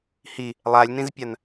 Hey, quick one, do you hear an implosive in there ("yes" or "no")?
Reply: no